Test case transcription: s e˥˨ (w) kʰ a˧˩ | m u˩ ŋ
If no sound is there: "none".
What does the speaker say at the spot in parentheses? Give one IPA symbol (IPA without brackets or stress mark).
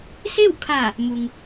w